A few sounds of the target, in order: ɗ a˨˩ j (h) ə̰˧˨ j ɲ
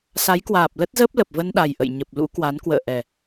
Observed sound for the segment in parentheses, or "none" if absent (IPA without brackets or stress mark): ʔ